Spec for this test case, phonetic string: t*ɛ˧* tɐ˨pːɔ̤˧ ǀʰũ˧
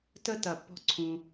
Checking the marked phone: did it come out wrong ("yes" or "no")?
yes